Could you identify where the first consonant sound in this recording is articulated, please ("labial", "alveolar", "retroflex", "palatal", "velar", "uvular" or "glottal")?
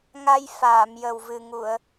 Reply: velar